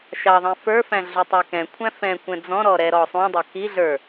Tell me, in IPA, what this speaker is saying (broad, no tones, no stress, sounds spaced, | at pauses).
ʃ ɑ ðˤ ɛ̃ f ə˞ f æ̃ ɮ u tˤ ə˞ k ɛ̃ kʷʰ æ̃ f ɛ̃ kʷ ɛ̃ d͡z ɔ̃ ɾ ɔ ɾ ɛ ɾ ɔ sˤ ũ dˤ ʌ k i ɮ ə˞